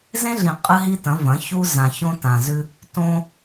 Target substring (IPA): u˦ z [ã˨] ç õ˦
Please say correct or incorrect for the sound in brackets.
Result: correct